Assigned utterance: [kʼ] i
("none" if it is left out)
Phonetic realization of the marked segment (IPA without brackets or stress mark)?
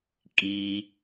kʼ